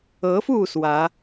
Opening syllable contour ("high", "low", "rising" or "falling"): rising